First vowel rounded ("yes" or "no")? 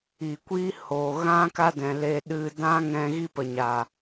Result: no